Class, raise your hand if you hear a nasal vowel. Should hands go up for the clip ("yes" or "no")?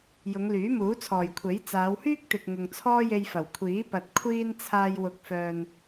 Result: no